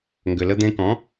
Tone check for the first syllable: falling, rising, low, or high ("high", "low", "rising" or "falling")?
low